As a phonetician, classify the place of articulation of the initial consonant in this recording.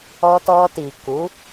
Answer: alveolar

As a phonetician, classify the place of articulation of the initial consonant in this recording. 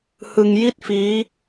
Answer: glottal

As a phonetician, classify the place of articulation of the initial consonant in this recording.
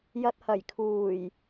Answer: palatal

